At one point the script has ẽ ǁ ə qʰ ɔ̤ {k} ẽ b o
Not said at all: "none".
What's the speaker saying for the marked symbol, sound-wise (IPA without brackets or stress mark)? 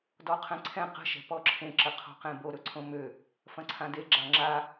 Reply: q